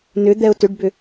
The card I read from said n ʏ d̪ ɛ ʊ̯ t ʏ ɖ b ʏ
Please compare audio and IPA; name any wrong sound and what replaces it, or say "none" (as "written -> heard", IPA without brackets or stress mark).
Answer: none